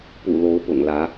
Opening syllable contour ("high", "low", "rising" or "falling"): low